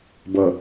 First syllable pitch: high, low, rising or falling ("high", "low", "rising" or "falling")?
low